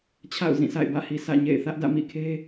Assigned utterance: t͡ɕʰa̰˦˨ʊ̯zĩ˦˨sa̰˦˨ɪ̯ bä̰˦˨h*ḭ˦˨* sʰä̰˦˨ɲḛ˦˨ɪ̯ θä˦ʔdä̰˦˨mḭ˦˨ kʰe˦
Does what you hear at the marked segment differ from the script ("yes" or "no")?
yes